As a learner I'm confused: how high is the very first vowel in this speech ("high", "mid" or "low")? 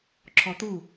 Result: mid